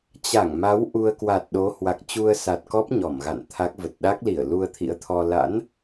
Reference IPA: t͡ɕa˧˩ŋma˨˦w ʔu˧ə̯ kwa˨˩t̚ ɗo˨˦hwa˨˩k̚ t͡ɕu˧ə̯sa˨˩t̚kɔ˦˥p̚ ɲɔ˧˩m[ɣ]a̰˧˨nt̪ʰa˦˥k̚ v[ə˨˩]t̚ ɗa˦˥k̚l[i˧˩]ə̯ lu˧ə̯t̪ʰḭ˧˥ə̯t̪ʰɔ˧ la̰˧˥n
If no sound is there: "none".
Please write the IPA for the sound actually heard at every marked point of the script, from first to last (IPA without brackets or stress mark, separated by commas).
ɣ, ə˨˩, i˧˩